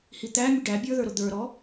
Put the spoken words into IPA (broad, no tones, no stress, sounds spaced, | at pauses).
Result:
h i t̪ æ mʲ ʊ ɖ æ bʲ ə˞ ð ə˞ ɾ ʊ d̪ ə˞ ɾ ɔ